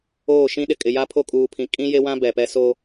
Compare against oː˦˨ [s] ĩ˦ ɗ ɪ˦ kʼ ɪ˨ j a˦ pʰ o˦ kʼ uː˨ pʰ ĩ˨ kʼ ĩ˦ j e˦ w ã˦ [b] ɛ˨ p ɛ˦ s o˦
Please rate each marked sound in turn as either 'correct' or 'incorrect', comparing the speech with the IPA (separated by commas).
incorrect, correct